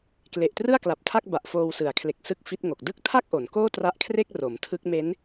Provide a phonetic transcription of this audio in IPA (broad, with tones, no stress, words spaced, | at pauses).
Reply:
kle˨˩ʔtrɯ˥˩a̯kla˨˩p̚tʰa˥˩k̚ ba˨˩ʔfoː˧wsɯ˩˦a̯kʰle˨˩k̚ sɯ˥˩k̚fi˦˥t̚ŋo˨˩k̚ dɯ˥˩k̚tʰa˥˩k̚ʔo˩˦n koː˥˩tra˦˥ʔkʰre˥˩k̚ ro˩˦mtʰɯ˦˥k̚ me˦˥n